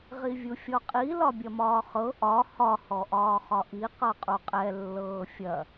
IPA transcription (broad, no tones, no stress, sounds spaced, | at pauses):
ʁ i vʲ u fʲ ɔ qʼ i l ɒ bʲ ɐ m ɒː χ ɤ ʔ ɒ h ɒ h ɔ ʔ ɒː χ ɒ ʔ i q ɤ qʼ u qʼ ɛ lː ɤː fʲ ɐ